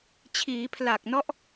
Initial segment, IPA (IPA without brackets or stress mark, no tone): t͡ɕʰ